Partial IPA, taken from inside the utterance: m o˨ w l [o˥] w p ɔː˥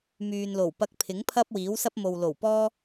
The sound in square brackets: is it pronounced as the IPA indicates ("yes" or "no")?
no